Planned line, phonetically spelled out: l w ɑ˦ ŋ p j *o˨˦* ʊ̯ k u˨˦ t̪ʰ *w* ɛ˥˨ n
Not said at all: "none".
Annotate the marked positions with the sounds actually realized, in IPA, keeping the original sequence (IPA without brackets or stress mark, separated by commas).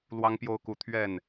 o˦, ɥ